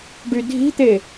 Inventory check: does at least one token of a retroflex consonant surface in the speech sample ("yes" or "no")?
yes